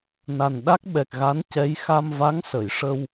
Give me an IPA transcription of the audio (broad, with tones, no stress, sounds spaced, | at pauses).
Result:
n a˨˩ n ɗ a˦˥ k̚ ɓ ɛ˨˩ k̚ ɣ a˧˥ n c ɛ˧˥ j x a˧ m v a˧˥ ŋ s ə˨˩˨ j ʂ ə˧ w